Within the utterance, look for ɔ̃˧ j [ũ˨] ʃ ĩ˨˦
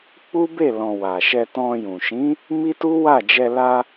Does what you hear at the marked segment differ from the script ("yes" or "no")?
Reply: no